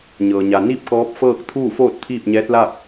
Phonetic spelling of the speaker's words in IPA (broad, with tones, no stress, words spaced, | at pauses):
ɲɤː˩ɲa˩ ni˥˨p̚kɔː˧˥p̚fɤː˥˨k̚ t̪ʰuː˥˨foː˥˨t̚ t̪ʰiː˥˨p̚ɲɛː˧˥t̚la˥˨p̚